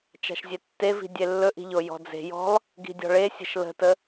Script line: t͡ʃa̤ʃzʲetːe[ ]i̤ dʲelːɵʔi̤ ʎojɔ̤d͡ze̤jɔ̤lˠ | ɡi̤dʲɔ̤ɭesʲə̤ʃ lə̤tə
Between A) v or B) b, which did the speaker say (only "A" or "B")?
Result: A